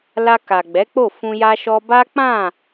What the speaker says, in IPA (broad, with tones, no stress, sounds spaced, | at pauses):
l a˧ k a˨ ɡ͡b ɛ˨˦ k͡p o˦˨ f ũ˧ j a˦ ʃ ɔ˦ b a˦ k͡p ã˦˨